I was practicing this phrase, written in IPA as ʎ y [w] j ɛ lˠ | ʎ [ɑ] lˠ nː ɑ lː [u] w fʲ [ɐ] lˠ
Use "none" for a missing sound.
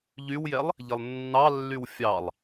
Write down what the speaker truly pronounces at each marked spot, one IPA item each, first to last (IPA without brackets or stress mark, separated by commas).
w, ə, y, ɑ